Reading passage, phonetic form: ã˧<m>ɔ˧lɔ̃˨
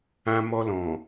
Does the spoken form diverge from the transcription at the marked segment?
no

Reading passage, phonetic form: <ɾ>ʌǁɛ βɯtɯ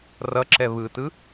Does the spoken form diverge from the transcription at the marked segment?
yes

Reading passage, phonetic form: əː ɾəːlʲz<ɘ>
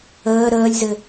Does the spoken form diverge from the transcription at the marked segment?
no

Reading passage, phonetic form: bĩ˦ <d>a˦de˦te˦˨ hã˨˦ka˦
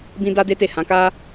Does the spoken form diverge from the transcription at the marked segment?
no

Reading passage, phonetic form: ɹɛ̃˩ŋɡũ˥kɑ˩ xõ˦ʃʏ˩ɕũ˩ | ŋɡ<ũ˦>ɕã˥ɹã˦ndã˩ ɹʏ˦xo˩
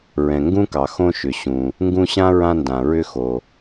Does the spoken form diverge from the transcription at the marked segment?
no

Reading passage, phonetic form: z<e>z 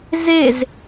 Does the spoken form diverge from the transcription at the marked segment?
no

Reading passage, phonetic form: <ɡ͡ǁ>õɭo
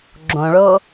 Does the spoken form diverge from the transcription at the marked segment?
no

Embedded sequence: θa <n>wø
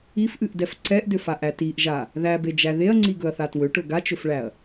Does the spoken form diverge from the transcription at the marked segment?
yes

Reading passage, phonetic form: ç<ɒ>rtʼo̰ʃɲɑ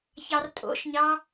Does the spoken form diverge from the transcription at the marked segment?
yes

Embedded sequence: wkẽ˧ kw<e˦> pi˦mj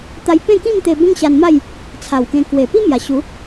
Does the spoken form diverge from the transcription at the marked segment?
yes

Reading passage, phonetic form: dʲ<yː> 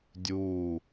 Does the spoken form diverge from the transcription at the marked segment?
yes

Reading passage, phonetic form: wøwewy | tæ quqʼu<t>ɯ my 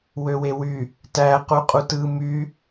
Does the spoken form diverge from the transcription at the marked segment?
no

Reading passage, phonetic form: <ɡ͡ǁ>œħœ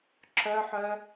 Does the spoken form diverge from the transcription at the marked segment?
yes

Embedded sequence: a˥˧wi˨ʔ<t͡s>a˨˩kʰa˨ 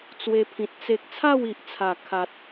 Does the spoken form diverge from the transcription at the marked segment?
yes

